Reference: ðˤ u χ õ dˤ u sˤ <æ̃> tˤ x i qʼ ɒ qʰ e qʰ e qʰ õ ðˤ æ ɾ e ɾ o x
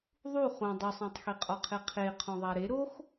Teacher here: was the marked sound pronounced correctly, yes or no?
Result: yes